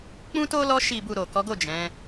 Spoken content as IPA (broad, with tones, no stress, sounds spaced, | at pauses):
k͡p ũ˦ t o˦ l ɔ˧ ʃ i˨ b u˨ ɾ o˨ k ɔ˨˦ ɡ o˦˨ d͡ʒ ɛ̃˨˦